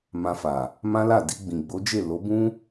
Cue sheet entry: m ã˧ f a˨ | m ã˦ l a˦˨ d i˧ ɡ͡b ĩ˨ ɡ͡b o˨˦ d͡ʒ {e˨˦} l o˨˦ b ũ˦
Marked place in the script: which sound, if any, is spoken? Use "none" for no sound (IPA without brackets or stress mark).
e˦˨